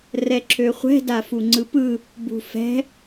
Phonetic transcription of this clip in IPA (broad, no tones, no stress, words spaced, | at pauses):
rɛǁʰøχʷɛ̤ dafuŋ͡ǀɯpɯ | bṳfɛ̤